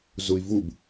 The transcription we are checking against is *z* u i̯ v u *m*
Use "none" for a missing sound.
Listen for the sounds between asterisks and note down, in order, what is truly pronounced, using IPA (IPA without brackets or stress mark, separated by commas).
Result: z, b